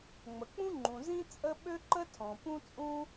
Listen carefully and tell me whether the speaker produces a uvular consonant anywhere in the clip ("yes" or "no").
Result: no